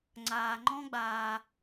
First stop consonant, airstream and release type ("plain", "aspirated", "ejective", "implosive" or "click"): click